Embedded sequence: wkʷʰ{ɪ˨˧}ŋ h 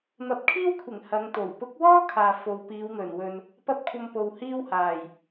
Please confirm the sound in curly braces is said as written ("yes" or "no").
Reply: no